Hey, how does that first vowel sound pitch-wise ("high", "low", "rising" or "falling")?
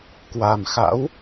low